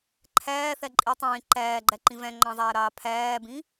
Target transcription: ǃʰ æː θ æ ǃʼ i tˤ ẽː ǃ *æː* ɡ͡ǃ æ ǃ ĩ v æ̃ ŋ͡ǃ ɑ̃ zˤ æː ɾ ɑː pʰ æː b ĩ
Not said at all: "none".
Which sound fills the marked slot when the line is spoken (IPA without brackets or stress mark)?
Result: æː